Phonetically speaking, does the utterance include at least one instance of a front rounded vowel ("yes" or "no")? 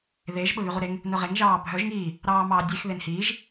yes